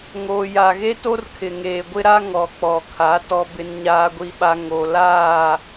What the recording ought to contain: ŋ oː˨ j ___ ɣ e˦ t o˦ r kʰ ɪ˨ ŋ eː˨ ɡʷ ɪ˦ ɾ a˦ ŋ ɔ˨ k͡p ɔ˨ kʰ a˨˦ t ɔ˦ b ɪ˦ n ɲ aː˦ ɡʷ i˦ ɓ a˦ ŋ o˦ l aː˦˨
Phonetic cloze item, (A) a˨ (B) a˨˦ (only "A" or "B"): A